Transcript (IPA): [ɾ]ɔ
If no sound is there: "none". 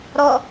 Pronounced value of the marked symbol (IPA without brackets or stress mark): ɾ